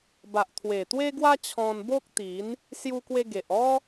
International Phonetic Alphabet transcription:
b a˨ ʔ t̪ʰ w e˨˩ t̪ w e˦ ɡ w a˦ t͡ɕʰ ɔ̃˧ n b o˦ k̚ t̪ i˨˦ n | s j u˧ k w e˧ ɡ e˨ ʔ ɔ˦

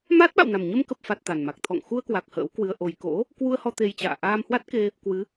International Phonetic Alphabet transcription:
m aː˦˥ t̚ ɓ a̰˧˨ w n a˨˩ m ɲ ə˧ m k ə˨˩ p̚ f a˨˩ t̚ t̪ a˨˩ n m a˨˩ k̚ t̪ʰ ɔ̰˧˨ ŋ x u˧ ə̯ k w a˨˩ k̚ h ə̰ː˧˥ w k w ɨ˧ ə̯ ʔ o˨˩ j k o̰˧˥ | k w u˧ ə̯ h ɔ˧ t̪ e˧ j t͡ɕ a̰ː˧˨ ʔ aː˧ m h w a˦˥ t̚ k e˧ | k w ɨ˨˦

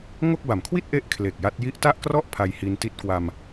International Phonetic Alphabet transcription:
ŋ o˥˩ k̚ b a˨˩ m kʰ w i˥˩ t̚ ʔ e˦˥ ʔ kʰ l e˨˩ k̚ j a˦˥ t̚ j i˦˥ ʔ t a˥˩ ʔ k r ɔ˥˩ ʔ pʰ a˧ j h i˧ n t i˦˥ t̚ k w a˧ m

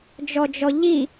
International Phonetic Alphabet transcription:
d͡ʒ ɔ d͡ʒ ɔ ʎ i

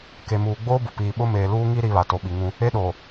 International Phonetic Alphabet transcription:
k e˨ m uː˨ ɡ͡b oː˦ b ʊ˨ p iː˨ ɓ ʊ˦ m eː˨ l uː˦ ŋ i˦ ɾ i˨ β a˨ t o˨ ɓ i˨ ŋ ũ˦ | e˦ ɗ oː˨

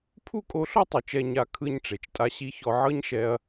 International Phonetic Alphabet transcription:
pʰ u˥ kʼ o˧˥ ɬ ɔ˥ tˤ u˩˧ t͡ʃ ɛ˧ ɲ a˧ kʰ ɯ˧ ɲ ʈ͡ʂ e˩ t͡ʃ tʼ a˧ ɕ i˧˥ ç ɔ˧ ʕ ɤ˥ ɲ ʃ ɛ˧ ɐ̯

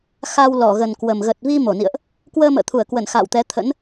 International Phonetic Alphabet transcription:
x a˧ w l ɔ˧˩ ɣ ə˨˩ n k w ə˨˩ m ɣ ə˨˩ t̚ v i˧ m o˧˩ n ḭ˧˨ ə̯ ʔ | k w əː˧ m ə̰ː˧˨ t̪ʰ u˧˩ ə̯ k w ə˧˩ n x a̰ː˧˨ w t̪ ɛ˨˦ t̪ʰ ə̰˧˥ n

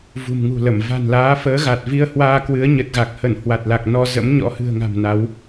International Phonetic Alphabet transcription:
v ṳ˨˩ m ŋ ṳ˨˩ l ə˧˩ m v a̤˨˩ n l aː˨˦ f əː˨˦ ɣ a˨˩ t̚ v i˧ ə̯ h w aː˧ k w ɨ˨˦ ə̯ ɲ ə˨˩ t̚ ɣ a˨˩ k̚ h ə˧˩ n h w a˨˩ t̚ l a˨˩ k̚ n ɔ˧ z ə̰˧˥ m ɲ ɔ̰˧˥ h ɨ̤˨˩ ə̯ ŋ a̤˨˩ m n a˨˦ w

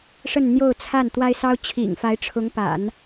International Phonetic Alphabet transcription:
ʂ ə˥˧ n n̪ j o˥˧ ʊ̯ t͡sʰ a˥˩ n t̪ w a˥ ɪ̯ s ɑ˥ ʊ̯ t͡ɕʰ ḭ˨˩ ŋ f a˧˥ ɪ̯ ʈ͡ʂʰ ʊ˧˥ ŋ p a̰˨˩˦ n

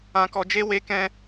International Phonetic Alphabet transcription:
ã˧ k ɔ˧ d͡ʒ e˦ w e˦ k ɛ̃˦

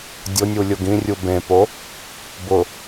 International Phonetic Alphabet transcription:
dʲ ʊ nʲ u lʲ ʊ ɡ ĩ rʲ u b ẽ p o | b ʊ

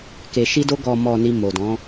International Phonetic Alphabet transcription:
k e˨ ʃ i˧ d o˧ ɡ ɔ˨ m ɔ˨ n i˨ m o˨ d ɔ̃˨˦

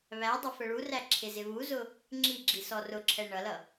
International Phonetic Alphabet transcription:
β æ dˤ ʌ f ə ɭ u r æ ǁʰ ɪ z ɪ β u z ʊ | ŋ͡ǁ i ɡ͡ǁ i s ɔ r ʊ ǁʰ ɛ ɳ ʌ l ʌ

